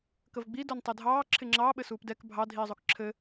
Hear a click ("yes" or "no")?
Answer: yes